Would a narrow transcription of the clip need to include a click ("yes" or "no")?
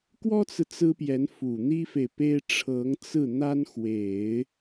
no